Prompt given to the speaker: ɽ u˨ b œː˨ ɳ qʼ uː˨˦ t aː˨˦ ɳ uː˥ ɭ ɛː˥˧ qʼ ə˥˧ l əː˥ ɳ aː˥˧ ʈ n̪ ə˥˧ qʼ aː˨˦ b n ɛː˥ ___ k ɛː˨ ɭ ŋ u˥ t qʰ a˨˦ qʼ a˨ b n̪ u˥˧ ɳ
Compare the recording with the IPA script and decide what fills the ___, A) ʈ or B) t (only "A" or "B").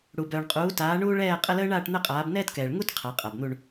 B